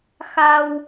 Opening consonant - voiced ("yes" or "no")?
no